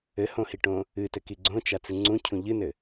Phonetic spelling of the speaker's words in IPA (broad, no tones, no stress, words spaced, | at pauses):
ɘhõhiʈõ | ɨtɘ kiɡ͡ǀõt͡ʃa t͡sɨŋ͡ǀũcʰũ ʎɨnɘ